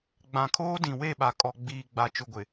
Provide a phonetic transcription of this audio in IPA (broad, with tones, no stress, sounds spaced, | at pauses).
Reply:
ɡ͡b ã˨ kʰ oː˦ d ĩ˨ w e˦˨ ɓ a˨ kʼ ɔ˨ ɡ͡b iː˨ ɡ͡b a˨ t͡ʃ ʊ˨ ɡʷ ɪ˨